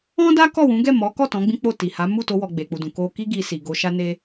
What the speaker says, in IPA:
ɔ̃˦ d a˦ k ɔ˦˨ w ũ˨˦ ɡ ɛ˦˨ m ɔ˨˦ k ɔ˦˨ t ɔ̃˨˦ ɡ͡b ĩ˦ k͡p o˦˨ t i˨ h a˨˦ m u˦˨ t o˧ w ɔ˨ ɡ͡b e˨ k͡p u˨ d ũ˨ k o˧ k i˦ ɡ i˧ s i˨ ɡ o˧ ʃ a˦ n e˦

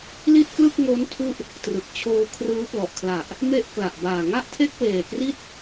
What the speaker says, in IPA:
l i˥˩ t̚ k l ɯ˥˩ k̚ ŋ o˦˥ n tʰ u˦˥ ʔ | t r ɯ˨˩ k̚ t͡ɕʰ oː˧ kʰ r ɯː˦˥ p l ɔ˨˩ ʔ kʰ l a˨˩ ʔ | m e˥˩ ʔ k l a˨˩ ʔ b aː˨˩ ŋ a˥˩ ʔ tʰ e˥˩ k̚ w eː˨˩ k r i˥˩ t̚

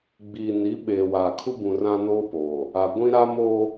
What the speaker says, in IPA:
ɡ͡b iː˨ n i˨˦ ɓ eː˨ w aː˨ kʰ u˦ b ũ˨ r ã˦ n oː˦ p oː˨ | a˨ ɡʷ ĩ˦ ɾ a˦ m oː˦

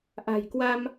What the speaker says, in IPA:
ʔ a̤˨˩ j k w a˧ m

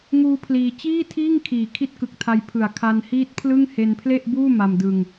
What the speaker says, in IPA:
ŋ uː˦˥ pʰ l iː˧ t͡ɕ iː˥˩ tʰ iː˥˩ ŋ kʰ iː˨˩ kʰ i˦˥ t̚ k ɯ˨˩ k̚ tʰ a˧ j pʰ ɯ˨˩ a̯ kʰ a˧ n h iː˦˥ t̚ pʰ l ɯ˥˩ ŋ h e˧ n pʰ l e˥˩ ʔ b uː˥˩ m a˧ m d ɯ˧ ŋ

